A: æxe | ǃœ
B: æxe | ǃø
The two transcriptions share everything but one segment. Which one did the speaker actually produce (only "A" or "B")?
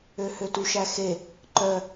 A